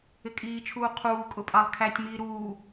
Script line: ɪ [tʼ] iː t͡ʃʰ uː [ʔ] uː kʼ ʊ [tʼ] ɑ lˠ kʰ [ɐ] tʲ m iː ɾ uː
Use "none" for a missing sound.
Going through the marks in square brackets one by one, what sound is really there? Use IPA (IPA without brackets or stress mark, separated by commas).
kʼ, qʰ, pʼ, æ